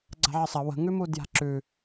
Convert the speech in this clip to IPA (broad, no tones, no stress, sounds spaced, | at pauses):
ɡ͡ǀ a̤ ʕ ə sˤ ɐ w ə̤ ŋ ʉ m u d j a̤ ǁ ʉ